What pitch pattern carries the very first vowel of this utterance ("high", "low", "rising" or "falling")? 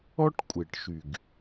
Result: high